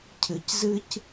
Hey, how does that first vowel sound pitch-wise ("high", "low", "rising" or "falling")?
low